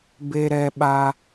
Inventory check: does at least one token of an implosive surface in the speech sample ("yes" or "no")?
yes